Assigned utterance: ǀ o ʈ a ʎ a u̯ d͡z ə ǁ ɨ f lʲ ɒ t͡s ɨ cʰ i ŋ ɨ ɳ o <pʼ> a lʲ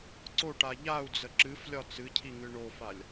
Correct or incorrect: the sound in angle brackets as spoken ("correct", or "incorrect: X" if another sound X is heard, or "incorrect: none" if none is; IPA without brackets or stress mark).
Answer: incorrect: f